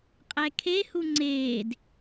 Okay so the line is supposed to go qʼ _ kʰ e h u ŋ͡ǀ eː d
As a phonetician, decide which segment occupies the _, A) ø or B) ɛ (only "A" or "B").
B